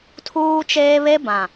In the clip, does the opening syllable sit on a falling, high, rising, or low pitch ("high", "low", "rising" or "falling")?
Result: high